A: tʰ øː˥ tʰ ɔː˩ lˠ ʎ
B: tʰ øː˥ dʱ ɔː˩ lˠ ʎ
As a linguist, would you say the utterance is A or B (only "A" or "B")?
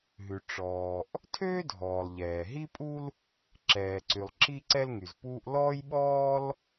B